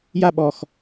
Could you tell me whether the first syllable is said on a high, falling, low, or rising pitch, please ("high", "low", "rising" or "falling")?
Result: falling